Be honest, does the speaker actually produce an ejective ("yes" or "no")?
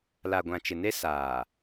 no